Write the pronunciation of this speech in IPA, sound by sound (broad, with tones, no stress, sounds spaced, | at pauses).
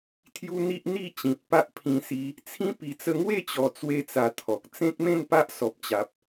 t̪ʰ j u˧ n̪ i˦ ʔ n̪ i˥˧ t͡ɕ ĩ˨ t̚ p a˦ ʔ pʰ ĩ˧ s i˧ | t͡sʰ ĩ˧ p i˨˩ t͡s ə˧ ŋ w e˥˧ t͡ɕ ɔ˨˩ t͡s w e˦ t͡s a˧ t̪ʰ ɔ˨ k̚ t͡s ẽ˦ k̚ m ẽ˥˧ n p a˦ ʔ s ɔ˨ p̚ t͡ɕ a˨ p̚